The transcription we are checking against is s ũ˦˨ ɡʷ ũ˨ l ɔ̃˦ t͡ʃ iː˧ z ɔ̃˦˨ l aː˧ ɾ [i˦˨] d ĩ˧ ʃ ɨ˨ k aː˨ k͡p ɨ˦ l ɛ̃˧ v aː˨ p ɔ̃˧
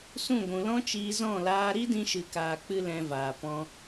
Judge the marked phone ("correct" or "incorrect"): incorrect